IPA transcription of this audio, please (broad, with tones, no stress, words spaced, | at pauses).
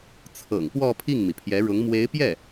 t͡sʰɤ̰˨˩ŋpwɔ˥˧ pʰi˥˩ŋmi˩pʰjɛ˧˥ɻʊ˧˥ŋ mwe˧˥ɪ̯pjɛ˥˩